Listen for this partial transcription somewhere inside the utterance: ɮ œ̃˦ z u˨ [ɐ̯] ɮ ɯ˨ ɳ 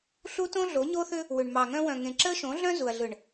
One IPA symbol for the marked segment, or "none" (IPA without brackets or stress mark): ɐ̯